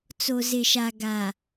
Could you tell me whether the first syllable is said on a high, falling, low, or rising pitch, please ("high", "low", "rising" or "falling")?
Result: low